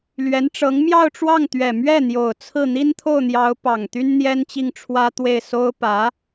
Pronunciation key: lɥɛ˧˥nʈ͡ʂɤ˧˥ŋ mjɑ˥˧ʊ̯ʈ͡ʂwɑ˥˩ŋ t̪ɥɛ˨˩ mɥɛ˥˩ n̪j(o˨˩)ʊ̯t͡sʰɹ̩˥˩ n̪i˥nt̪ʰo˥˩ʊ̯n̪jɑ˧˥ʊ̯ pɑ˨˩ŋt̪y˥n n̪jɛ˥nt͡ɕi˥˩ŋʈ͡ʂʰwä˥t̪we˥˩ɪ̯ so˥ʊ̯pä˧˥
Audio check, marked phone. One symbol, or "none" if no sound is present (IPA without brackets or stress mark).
o˨˩